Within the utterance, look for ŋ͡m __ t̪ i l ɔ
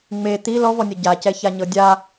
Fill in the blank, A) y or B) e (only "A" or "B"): B